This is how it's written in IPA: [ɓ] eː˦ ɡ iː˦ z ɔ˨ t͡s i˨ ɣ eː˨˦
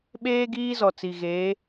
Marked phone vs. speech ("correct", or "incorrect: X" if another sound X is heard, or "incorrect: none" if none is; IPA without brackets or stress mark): correct